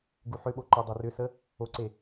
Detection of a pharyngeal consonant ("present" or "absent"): present